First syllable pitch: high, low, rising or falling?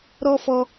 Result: high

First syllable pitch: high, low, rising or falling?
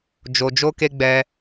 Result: low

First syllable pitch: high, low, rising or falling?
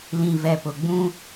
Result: low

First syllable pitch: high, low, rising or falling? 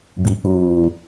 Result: low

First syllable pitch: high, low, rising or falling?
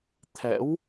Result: rising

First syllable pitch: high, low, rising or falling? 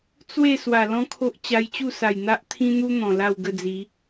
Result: falling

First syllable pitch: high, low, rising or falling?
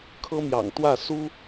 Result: high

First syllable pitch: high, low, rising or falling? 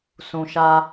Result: low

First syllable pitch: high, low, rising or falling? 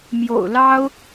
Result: low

